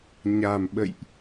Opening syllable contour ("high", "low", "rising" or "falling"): low